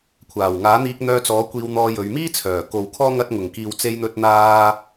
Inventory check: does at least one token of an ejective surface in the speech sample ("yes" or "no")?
no